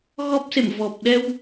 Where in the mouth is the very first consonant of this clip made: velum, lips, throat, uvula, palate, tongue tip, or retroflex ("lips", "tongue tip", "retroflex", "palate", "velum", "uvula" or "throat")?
velum